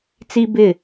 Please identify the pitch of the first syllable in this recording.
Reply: high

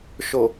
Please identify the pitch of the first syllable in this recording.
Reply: low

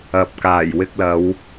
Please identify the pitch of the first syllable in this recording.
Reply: low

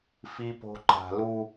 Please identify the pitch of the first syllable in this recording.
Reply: high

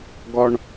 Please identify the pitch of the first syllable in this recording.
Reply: high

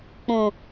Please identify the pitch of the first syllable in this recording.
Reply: low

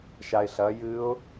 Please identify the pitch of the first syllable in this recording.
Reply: low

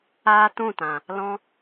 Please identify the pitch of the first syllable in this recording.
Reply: high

